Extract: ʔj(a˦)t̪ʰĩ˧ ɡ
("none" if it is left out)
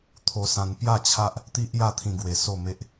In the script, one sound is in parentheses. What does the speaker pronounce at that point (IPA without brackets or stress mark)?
a˦